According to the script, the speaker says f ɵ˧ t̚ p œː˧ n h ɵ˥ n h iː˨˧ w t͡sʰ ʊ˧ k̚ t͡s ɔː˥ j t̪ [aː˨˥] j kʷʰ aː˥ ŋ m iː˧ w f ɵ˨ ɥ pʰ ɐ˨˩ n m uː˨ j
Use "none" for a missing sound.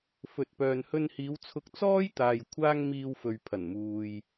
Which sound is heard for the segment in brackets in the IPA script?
aː˨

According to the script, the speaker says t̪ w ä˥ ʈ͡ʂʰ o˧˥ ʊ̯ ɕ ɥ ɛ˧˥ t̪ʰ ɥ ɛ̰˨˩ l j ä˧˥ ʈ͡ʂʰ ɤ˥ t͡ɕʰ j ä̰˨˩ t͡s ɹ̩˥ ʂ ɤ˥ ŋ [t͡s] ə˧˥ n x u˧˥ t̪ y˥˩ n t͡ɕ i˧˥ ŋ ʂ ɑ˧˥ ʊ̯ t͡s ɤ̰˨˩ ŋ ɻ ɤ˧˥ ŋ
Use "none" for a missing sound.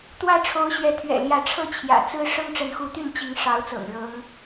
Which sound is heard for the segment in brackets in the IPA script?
ʈ͡ʂ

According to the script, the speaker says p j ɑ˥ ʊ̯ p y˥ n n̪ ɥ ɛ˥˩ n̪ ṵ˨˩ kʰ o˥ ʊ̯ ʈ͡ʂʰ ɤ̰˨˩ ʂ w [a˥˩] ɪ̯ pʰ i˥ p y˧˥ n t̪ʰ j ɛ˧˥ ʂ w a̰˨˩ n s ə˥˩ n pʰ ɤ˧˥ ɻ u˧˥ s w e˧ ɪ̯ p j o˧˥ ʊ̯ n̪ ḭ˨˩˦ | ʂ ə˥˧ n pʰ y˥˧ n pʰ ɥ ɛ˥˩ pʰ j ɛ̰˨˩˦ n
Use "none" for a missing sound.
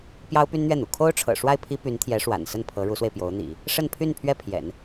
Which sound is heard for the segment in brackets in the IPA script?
a˥˩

